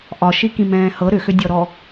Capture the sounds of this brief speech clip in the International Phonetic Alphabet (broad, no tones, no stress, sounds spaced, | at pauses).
ʔ ɒ ʃ i k ĩ m ɛ̃ː h ɤ ɾ ʏ x ʏ dʲ ɔ ɾ ɔ